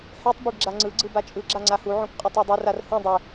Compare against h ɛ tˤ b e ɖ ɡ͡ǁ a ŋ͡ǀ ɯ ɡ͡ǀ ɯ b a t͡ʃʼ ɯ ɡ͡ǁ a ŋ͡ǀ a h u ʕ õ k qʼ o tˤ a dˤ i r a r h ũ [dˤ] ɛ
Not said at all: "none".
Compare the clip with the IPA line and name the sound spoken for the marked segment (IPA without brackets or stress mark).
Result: dˤ